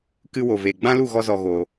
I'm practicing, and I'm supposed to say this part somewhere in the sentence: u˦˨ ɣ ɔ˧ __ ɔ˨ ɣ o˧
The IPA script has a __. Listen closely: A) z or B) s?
A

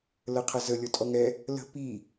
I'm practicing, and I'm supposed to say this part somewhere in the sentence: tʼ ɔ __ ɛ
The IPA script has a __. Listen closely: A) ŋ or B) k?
A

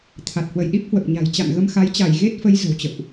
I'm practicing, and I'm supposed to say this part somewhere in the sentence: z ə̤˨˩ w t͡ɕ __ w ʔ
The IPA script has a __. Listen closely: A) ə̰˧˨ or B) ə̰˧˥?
A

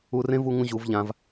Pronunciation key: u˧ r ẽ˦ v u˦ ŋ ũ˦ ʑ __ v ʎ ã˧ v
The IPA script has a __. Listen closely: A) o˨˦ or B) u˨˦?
B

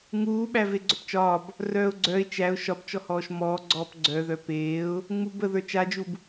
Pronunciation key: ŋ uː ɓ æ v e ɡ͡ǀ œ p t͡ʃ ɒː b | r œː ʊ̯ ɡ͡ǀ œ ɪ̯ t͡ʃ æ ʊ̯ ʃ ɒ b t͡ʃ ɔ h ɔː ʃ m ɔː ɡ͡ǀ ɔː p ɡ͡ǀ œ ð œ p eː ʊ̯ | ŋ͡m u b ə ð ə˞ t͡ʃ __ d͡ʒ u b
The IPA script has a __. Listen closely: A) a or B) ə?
A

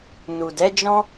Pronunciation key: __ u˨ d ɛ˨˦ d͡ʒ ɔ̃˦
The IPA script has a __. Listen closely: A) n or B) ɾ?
A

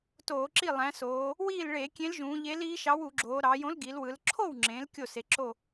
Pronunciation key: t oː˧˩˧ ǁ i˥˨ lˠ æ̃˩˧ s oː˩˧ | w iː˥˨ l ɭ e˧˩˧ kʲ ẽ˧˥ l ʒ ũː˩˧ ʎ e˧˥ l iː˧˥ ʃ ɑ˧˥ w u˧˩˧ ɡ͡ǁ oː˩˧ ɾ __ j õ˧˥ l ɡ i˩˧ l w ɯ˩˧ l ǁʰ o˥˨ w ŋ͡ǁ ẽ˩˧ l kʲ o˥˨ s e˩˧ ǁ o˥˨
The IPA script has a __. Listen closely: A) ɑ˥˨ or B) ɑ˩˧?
B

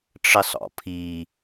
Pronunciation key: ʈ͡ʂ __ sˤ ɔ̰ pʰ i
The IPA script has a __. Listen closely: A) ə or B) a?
A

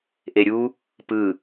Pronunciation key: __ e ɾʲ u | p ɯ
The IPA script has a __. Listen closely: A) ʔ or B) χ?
A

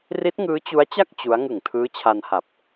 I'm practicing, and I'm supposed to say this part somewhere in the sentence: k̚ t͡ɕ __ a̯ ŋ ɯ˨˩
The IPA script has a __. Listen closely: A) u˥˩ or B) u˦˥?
B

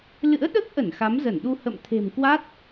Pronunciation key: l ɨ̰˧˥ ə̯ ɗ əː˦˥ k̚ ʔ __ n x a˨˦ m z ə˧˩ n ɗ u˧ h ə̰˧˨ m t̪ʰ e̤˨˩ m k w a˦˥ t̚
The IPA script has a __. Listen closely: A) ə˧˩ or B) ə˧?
A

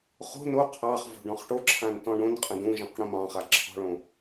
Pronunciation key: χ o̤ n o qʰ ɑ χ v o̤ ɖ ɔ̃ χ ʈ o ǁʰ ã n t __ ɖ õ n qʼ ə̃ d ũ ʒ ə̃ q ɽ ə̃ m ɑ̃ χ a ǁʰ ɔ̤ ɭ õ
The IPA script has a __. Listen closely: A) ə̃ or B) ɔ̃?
B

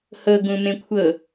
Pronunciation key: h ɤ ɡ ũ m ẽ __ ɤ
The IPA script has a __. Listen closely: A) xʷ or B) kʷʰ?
B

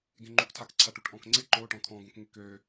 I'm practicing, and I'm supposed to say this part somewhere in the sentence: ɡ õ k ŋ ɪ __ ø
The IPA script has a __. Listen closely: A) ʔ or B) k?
B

